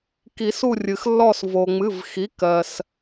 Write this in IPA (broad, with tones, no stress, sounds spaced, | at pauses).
k i˨˩˦ s u˦˨ rʲ ɨ˩ x lː ɔ˦˨ s v o˩ ŋ͡m ɨ˩˧˩ v x i˩˥ k ɜ˩ s